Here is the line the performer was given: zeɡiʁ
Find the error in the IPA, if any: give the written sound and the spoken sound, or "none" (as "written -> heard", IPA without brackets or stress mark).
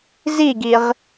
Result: e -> i